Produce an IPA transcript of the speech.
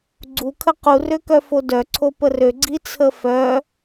ɡ͡ǀ u kʰ ə q u r ø k œ f o d œ ǀʰ o p ə r ø ɡ͡ǀ i t͡sʰ ə f œ

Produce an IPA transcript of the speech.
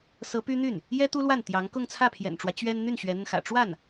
s ɤ˧˥ p y˥ n̪ y˥˩ n | j ɛ˥ t̪ u˥ l w a˥˩ n t̪ j ɑ˧˥ ŋ k ʊ˥˧ ŋ t͡sʰ ä˥˩ pʰ j ɛ̰˨˩ n ʈ͡ʂ w ä˦ t͡ɕ ɥ ɛ˥ n n̪ y˥˩ n ɕ ɥ ɛ˧˥ n̪ ə˧ n x ä̰˨˩ ʈ͡ʂ w a˥˩ n

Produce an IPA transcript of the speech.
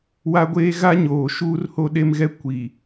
w a˦ ɡʷ eː˦ ɣ a˦ ɲ oː˨ ʃ uː˦ r h o˦ ɗ e˦ m ɣ ɛ˦ kʷ i˨

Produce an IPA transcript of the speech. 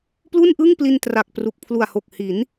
p l u˥˩ n ʔ ɯ˥˩ ŋ p l i˧ n t r a˨˩ k̚ p r u˨˩ k̚ pʰ l u˨˩ a̯ h o˨˩ k̚ h i˩˦ n

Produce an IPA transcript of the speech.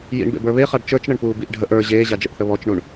j ḭ ɳ b ḛ b ə˞ β e χ a ɖ t͡ʃ ə˞ t͡ʃ ɳ ə ɳ p uː b i ʔ ɖʱ ə ʔ ə˞ ʑ eː ʑ a d͡ʒ ə ʔ θ ə β ɔ t͡ʃ ɳ u ɳ

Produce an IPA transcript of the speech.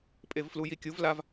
pʼ e v f l u j i kʲ u v l a v

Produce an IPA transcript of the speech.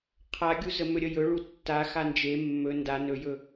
qʰ a ɡʲ u z ə m ɵ ɾʲ ə j ɵ ɭ u tː a x a n d͡ʒ e mː ɵ n d a n ɵ j ɵ

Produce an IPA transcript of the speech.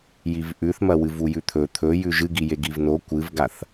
j i v ʔ ʉ θ m ɐ w ɨ v u j ʉ t̪ʰ ɵ t̪ʰ ɵ j ʉ ʒ ɨ ɡ i j e ɡ i v n o kʷ ɨ v ɡ a θ

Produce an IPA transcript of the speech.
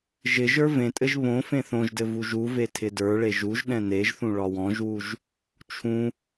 ʒ ɪ ʒ ə˞ v ẽ tʼ ɘ ʒ β õ f ẽ θ õ ʒ d ɘ v u ʒ u v e tʰ ɪ d ə˞ ɭ e ʒ u ʒ ɗ ɛ̃ n e ʒ θ ũ ɭ ɒ w ɔ̃ ʒ w u ʒ | t͡ʃʰ ũ

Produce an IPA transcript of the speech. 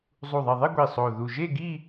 zˤ u˨˩ ðˤ i˨˩ ðˤ e˥˧ ɡʷ i˨˩ sˤ o˨˩ ð u˨˩ ʒ e˥˧ ɡ i˥˧

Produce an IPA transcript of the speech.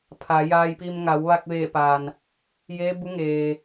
pʰ a˩˧ j aː˧ j p i˧ m ŋ a˩˧ w ʋ a˧ k̚ ʋ eː˧˩ p a˩ n | j eː˧˥ b u˧˥ ŋ eː˩

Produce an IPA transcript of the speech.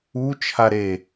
u t͡ʃʰ a ɾ e

